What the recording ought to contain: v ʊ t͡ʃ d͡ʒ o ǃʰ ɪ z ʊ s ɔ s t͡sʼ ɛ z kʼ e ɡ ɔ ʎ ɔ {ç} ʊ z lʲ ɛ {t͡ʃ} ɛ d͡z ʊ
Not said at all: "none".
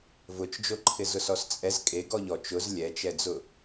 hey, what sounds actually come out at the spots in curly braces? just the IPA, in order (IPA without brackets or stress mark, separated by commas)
t͡ʃ, t͡ʃ